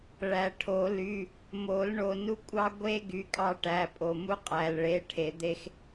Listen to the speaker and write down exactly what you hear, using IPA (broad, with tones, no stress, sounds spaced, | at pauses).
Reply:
ɭ æ˨˩˦ ʈʰ o˨˩˦ l y˩˧˩ | m o˨˩˦ l ɳ o˩˧˩ n u˦ kʷʼ ɑ˦ ɡʷ e˦ ɡ y˩˧˩ kʼ ɑ˦ ʈ æ˩˧˩ pʼ o˩ m u˦ qʼ æ˩ l ɭ e˩˧˩ ʈʰ e˩ d̪ e˦ x